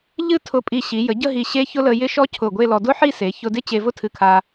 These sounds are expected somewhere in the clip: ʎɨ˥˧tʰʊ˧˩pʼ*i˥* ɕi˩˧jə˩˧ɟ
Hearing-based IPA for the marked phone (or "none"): i˧˩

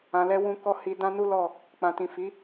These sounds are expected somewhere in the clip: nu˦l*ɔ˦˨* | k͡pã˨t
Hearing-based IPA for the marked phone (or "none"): ɔ˦˨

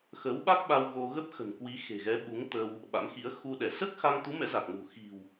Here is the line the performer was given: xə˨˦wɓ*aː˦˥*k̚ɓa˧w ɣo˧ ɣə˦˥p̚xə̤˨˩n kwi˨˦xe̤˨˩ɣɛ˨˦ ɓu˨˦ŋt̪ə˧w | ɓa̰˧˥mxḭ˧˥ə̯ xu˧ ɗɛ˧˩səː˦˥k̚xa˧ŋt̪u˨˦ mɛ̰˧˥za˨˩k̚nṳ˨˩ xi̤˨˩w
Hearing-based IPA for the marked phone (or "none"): a˦˥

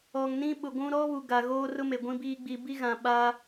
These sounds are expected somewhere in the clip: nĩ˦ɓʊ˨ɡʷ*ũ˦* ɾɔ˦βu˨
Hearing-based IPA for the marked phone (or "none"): ũ˦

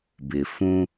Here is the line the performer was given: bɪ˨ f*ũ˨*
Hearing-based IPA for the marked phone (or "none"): ũ˦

